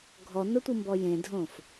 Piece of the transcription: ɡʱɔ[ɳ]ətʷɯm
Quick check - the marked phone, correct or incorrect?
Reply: incorrect